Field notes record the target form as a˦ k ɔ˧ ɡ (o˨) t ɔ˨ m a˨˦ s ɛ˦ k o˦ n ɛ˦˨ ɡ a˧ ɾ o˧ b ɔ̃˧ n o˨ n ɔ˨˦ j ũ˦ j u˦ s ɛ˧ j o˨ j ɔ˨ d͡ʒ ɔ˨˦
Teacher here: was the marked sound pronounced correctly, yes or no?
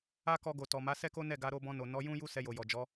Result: yes